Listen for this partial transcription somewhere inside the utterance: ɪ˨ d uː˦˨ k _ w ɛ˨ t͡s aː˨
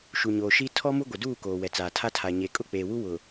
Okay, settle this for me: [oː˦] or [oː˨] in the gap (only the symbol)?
oː˨